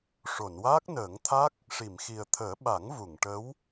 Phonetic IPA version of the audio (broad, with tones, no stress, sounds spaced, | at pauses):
ʂ o˨˩˨ n w aː˦˥ k̚ n əː˨˩˦ ŋ t̪ʰ a˦˥ k̚ | ʂ i˨˩˨ m x i˨˩ ə̯ t̪ʰ əː˨˩˦ ɓ a˨˩˦ ŋ v u˨˩˨ ŋ ʈ ə˧˥ w